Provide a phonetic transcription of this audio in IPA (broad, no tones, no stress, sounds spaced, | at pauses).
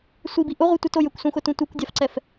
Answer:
sʷ i b i ʔ ʊ ʁʷ i tʷ ə t o j ə kʷ s ũ x ʊ t ũ tʷ i kʷ dʲ a f ǀ ɛ f